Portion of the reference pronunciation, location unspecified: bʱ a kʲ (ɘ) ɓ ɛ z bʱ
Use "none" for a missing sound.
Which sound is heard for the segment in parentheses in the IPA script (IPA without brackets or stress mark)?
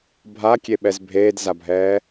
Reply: e